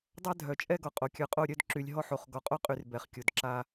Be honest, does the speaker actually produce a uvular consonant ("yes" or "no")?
yes